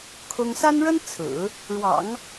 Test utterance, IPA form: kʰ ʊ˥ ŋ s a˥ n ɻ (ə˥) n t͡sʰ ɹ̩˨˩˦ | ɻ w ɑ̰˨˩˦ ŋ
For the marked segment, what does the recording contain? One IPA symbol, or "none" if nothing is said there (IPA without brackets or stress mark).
ə˥